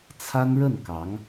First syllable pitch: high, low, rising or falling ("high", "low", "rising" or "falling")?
high